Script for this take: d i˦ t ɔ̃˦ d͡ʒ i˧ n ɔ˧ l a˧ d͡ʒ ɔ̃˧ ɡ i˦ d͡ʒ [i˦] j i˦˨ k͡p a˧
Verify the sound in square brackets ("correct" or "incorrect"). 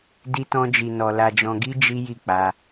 correct